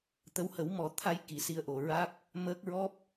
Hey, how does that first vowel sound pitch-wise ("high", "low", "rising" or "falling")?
rising